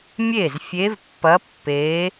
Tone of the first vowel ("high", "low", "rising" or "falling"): falling